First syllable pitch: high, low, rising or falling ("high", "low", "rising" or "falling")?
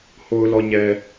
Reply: low